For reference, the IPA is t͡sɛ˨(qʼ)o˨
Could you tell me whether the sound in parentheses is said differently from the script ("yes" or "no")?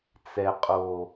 no